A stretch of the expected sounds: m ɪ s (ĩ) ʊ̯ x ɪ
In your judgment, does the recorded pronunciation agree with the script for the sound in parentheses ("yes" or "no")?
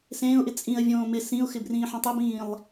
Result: yes